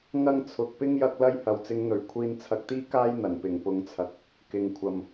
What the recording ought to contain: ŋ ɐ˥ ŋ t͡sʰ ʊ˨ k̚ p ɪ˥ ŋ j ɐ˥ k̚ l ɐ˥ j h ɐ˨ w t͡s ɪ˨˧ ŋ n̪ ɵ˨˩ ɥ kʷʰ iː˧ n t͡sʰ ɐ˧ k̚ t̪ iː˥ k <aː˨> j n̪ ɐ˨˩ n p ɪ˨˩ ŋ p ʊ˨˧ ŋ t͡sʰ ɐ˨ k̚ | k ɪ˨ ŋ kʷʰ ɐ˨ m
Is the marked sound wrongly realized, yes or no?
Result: yes